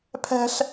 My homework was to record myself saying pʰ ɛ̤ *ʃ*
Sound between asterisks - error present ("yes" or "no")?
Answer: yes